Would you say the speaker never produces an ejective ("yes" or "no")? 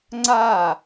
yes